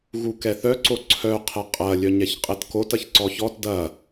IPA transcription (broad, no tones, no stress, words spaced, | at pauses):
ɣukɛθœ ǀoǀʰœ qʰɛqʼɐ lʲœɲɛçqʼɛtkot ɐçǀɔçɔt dɐ